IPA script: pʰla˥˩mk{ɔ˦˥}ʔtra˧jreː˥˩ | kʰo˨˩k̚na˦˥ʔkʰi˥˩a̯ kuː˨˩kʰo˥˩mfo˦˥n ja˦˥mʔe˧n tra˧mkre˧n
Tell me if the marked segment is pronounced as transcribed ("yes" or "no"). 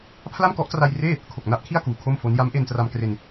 yes